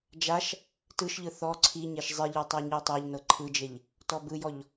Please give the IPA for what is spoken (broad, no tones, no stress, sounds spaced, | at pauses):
d͡ʒ a ʃ | t ɯ ʃ ʎ ɯ θ ɔ ǀʰ i ɲ e ʃ zˤ i ʎ e tˤ ɤ ɲ i tˤ e ʎ n ɤ ǃʰ ɯ d͡ʒ e ʎ | t ɔ b ɯ j ɔ ʎ